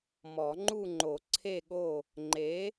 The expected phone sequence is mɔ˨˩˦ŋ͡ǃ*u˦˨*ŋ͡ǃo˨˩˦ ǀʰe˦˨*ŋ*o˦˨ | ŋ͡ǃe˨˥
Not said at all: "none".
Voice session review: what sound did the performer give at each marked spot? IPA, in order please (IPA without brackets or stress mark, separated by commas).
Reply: u˦˨, ɠ